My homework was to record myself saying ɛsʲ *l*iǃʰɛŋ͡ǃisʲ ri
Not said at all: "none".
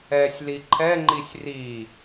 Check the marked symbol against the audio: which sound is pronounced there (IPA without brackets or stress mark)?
l